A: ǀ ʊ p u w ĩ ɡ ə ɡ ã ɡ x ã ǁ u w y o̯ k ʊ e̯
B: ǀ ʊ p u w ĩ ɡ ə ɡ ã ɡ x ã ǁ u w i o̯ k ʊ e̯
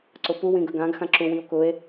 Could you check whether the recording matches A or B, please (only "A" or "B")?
B